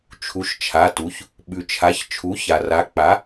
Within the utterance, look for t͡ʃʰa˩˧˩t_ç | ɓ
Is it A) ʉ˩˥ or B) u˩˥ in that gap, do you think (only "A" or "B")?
B